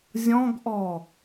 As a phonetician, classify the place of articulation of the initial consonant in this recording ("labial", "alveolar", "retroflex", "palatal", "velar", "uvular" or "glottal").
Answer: alveolar